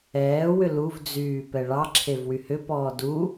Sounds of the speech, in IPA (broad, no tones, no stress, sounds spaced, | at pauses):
ɛː w ʏ l u v d͡z yː p ɛ ɭ ɑ ǁʰ e v w y h ʏ p ɔː d u